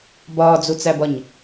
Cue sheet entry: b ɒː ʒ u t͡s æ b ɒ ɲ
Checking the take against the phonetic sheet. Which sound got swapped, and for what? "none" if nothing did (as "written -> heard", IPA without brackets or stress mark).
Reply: ʒ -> d͡z